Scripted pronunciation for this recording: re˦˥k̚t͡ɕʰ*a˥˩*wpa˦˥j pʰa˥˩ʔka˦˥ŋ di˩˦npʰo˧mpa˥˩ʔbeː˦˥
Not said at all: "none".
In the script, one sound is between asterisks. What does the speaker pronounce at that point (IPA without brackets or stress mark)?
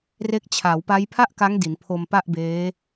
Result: a˩˦